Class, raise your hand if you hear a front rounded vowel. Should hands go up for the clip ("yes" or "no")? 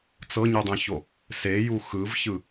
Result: no